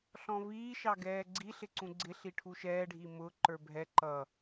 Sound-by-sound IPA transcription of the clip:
ɬɔ̃viːʃɑ ɡɛːɡ͡ǀiɬɪ ǀũɡ͡ǀɪɬi ʈʰuʃɛːɖʱi mʊːǃə˞ bʱɛ ǃʌ

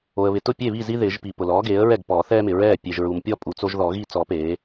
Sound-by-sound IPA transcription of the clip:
o˨ə̯βɪ˨tʊ˥˩ pʲe˥˩βi˥˩zi˦ ðɪː˨˩˦ʒpi˨ pʊ˨lɔː˩˥ɡeː˩˥ə̯ɹɛ˥˩ɡ pɔː˨˩˦θɛː˦mɪ˨ ɹɛː˥˩ pʲe˨ʒɹu˨mpʲɔ˥˩pʼu˨ t͡so˦ʒðɔ˨˩˦ɣi˥˩ t͡sɔ˨˩˦ peː˩˥

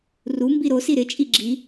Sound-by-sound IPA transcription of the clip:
ru mbiɾosi ɾɪt͡ʃʼi ɡ͡ǁi

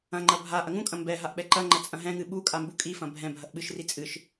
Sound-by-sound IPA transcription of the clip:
ɐ̃ŋ͡ǃɐ bʱa ʔɐŋũkʼɐ̃ mbɛ ɦaʔɓɛǃɐŋ͡ǃɐ t͡sʼɐ̃ɦɛ̃ŋɨ ɓu kʼambukʼifɐ̃ bʱɛ̃ bʱɐʔɓɨʃri t͡sʼɨʃ

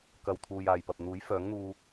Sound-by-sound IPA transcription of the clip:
kɐ˨w t̪ʰuː˨jaː˨jpɐ˨p̚n̪uː˨˥j fœː˨˥ŋn̪uː˧

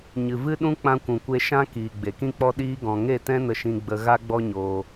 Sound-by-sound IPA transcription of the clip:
ɲɨ˨vɨ˦ɗũ˦ k͡pã˦kʷũ˧kʷe˦ ʃã˦kiː˨ ɡ͡be˨kĩ˦k͡pɔ˦ ɗiː˦ɡɔ̃˧ ŋe˦˨tɛ̃˦nə˧ʃĩ˧ ɡ͡bə˦ ɣa˦ɡ͡bɔ˦ɲoː˧

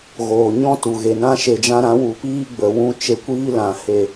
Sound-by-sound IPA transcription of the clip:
ɣoː˨ɲɔ̃˦ tu˨ɣe˨nã˦ ʃe˧d͡ʒã˦ ɾã˨˦wu˨piː˦ ɡ͡bə˨ wũ˧ t͡ʃe˧kʷiː˦lã˨ he˨

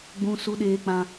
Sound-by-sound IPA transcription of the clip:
ɡ͡bũ˧ su˧ɗeː˧k͡pã˧

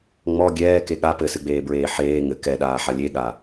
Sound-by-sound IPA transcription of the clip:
ŋ͡mɔ ɡʲɛːke ɠa pɘsɨɡ͡beːbɹeː ħeː ŋɘ kɛɗaːħa lʲeɠa

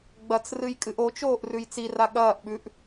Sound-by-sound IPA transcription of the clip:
ɡ͡bɐt͡s rɨjkʼɨʔot͡ʃoːʔ rʉjt͡sira ɠɐːʔɓʉʔ

